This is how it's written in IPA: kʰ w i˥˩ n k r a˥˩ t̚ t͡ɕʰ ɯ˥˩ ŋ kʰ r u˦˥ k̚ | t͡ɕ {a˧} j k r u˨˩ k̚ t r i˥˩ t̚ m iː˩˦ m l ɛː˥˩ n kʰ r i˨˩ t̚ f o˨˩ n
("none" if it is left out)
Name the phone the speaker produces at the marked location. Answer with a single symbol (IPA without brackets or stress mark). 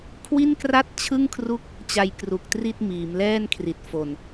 a˧